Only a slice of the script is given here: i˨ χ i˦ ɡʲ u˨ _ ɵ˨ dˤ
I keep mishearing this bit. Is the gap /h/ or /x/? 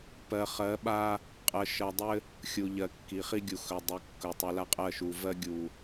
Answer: x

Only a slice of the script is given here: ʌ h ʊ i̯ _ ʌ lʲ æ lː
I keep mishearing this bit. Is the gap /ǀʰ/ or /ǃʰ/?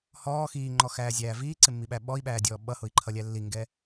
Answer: ǃʰ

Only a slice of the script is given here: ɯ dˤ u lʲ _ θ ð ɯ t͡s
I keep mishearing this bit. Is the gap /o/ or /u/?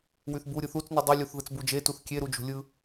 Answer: u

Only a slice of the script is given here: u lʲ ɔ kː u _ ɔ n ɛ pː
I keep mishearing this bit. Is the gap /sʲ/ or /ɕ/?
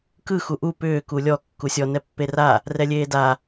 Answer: sʲ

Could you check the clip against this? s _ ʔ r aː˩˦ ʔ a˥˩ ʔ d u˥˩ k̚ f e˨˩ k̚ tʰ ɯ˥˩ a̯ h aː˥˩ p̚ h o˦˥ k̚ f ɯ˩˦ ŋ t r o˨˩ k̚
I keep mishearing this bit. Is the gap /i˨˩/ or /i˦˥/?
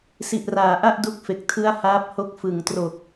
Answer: i˨˩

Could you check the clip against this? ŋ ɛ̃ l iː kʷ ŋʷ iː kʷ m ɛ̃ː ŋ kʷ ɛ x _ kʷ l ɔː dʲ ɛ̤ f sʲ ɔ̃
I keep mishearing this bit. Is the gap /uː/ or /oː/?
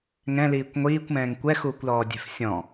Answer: uː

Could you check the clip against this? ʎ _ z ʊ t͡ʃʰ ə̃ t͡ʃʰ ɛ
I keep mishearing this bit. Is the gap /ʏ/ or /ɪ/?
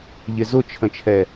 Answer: ɪ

